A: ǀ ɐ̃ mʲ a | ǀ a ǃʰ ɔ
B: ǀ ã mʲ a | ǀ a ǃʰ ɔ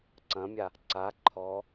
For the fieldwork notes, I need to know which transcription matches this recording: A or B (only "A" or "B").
A